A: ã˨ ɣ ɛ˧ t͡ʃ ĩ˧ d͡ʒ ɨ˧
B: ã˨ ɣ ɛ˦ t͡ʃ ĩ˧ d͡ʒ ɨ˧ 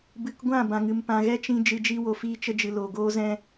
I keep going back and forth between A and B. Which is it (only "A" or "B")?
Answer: B